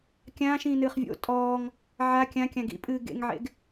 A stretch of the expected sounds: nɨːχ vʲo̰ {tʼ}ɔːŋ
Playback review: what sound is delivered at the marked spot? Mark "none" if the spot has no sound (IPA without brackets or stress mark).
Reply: tʼ